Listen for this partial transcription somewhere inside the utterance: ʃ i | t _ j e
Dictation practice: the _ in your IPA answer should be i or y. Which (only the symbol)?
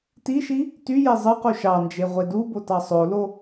y